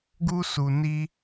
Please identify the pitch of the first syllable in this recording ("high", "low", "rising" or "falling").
high